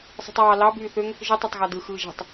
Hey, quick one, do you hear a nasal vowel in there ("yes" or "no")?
no